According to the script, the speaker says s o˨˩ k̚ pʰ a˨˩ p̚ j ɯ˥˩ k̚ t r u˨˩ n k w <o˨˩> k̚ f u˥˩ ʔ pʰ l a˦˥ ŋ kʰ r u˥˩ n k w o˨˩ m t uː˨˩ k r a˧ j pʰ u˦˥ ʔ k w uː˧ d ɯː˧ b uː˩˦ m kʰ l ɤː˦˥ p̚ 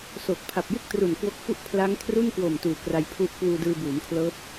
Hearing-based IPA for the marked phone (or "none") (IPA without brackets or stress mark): o˦˥